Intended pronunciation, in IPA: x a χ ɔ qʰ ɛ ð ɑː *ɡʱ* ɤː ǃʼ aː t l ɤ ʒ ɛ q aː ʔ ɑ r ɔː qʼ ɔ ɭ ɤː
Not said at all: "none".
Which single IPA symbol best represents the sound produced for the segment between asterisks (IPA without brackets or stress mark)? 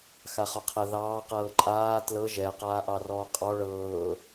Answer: q